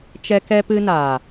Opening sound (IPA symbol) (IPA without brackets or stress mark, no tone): t͡ʃ